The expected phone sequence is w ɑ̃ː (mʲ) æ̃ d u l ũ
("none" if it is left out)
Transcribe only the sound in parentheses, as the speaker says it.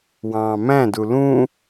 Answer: m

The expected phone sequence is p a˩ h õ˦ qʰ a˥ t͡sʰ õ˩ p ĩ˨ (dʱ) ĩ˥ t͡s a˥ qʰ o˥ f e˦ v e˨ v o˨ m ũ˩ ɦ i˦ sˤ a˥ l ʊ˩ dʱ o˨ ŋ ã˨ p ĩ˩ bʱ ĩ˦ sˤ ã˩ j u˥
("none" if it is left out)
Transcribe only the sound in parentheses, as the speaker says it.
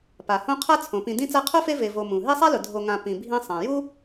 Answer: d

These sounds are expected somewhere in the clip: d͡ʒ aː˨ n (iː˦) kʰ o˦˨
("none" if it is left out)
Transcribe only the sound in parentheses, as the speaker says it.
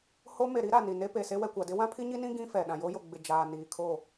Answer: iː˨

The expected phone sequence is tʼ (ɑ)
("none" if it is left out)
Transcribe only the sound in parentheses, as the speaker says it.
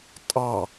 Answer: ɑ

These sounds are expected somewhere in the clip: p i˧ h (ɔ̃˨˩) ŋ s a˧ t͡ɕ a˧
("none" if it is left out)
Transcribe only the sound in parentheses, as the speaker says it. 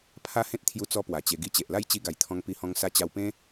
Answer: ɔ̃˧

